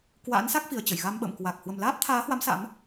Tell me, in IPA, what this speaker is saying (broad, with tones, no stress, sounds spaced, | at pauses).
k w a̰ː˧˥ n s a˦˥ k̚ f i˨˩ ə̯ t͡ɕ ə˧˩ j ɣ a˧ m ɓ ə̰ː˧˨ m k w a˨˩ k̚ h w ə˨˩ m l aː˦˥ p̚ t̪ʰ aː˨˦ h w a˨˦ m s a̰˧˥ m